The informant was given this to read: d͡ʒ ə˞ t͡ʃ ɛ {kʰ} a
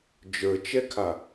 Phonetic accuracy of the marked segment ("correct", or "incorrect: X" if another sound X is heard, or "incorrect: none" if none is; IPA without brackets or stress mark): correct